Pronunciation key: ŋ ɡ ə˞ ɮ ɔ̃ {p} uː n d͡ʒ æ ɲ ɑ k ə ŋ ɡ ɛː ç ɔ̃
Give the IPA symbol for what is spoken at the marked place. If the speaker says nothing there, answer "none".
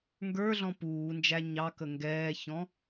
p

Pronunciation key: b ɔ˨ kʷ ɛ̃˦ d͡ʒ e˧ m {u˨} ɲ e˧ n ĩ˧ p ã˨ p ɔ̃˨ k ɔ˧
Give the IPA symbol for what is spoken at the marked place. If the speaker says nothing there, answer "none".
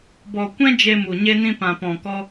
u˨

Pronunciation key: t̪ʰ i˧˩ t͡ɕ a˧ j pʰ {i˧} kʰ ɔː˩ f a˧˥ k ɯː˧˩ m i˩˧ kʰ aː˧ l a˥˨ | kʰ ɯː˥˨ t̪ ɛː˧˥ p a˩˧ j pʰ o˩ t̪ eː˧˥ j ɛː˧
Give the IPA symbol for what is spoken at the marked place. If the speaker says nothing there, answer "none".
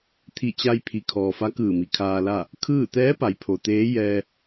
i˩˧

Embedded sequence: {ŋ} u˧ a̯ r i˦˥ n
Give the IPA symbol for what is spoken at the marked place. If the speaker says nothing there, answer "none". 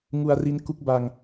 ŋ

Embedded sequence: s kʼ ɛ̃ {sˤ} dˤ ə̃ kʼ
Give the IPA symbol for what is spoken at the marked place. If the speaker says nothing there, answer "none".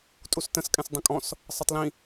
s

